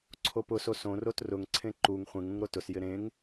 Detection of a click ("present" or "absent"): present